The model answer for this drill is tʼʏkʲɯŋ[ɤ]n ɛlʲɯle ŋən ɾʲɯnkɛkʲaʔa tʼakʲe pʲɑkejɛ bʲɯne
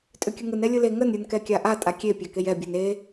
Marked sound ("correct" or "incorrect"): incorrect